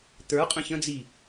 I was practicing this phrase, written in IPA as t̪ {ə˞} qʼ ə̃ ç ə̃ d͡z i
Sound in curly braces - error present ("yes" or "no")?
no